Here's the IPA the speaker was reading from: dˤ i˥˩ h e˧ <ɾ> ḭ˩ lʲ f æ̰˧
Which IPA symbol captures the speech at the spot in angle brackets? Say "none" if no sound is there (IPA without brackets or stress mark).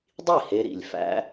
ɾ